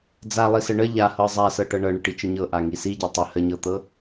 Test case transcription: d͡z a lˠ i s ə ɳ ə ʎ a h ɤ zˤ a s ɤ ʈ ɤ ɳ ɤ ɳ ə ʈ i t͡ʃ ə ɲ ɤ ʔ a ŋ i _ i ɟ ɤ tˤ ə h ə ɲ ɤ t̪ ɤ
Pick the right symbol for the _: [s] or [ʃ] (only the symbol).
s